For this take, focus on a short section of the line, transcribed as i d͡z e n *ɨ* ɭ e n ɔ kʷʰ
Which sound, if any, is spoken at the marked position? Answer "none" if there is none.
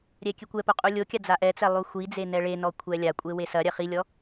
ɛ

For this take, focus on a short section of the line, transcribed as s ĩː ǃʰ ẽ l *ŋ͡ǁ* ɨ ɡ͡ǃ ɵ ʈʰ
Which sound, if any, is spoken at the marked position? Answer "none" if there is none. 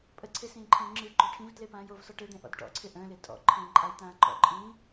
ŋ͡ǁ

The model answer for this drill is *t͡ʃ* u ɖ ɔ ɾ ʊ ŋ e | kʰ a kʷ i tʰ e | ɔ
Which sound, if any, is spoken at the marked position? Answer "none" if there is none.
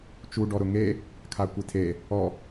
t͡ʃ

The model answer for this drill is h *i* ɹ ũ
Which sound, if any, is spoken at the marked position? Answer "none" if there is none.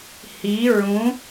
i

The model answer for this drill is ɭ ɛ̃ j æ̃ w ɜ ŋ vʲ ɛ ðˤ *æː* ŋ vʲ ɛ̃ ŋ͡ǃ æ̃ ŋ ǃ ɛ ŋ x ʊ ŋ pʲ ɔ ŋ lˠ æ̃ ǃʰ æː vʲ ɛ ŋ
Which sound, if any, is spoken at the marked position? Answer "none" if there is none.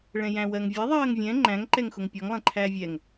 ɜː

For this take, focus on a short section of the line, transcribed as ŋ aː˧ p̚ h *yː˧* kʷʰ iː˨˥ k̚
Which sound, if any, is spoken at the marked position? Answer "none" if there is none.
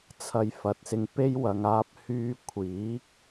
yː˧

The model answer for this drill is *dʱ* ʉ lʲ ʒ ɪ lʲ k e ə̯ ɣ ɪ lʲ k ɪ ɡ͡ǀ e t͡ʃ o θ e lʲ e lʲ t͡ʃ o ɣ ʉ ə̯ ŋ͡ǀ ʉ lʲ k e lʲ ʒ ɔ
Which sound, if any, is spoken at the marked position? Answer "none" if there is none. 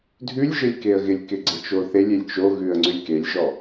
dʱ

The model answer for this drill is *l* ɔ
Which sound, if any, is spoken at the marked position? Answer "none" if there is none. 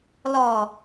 l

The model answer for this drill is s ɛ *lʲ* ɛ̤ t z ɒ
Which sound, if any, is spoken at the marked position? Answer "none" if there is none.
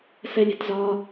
lʲ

